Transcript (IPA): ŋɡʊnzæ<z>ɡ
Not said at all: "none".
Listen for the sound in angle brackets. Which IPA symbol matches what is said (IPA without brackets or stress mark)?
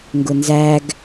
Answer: none